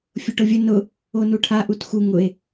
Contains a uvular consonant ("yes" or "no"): no